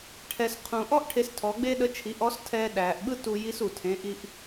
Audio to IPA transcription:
ʈʰɛ˩sqʰũ˩ʔɔ˥ʔ ʈʰe˧stʰɔ˩˧ɡ͡be˥ɗə˧˥ t͡ʃʰi˩˧ʔɔ˧˥s tʰɛː˧ɗæː˩ʔɓɯ˥ tu˧ji˧˥s u˩tʰẽ˩˧ ʔi˧ʔ

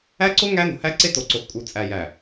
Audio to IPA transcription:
æ˦ǀo˦ ŋæ˦no̤˨hæ˦ǀe˦ to˨ǀo˨xkʼu˨ t͡sʼæ˨jæ˨

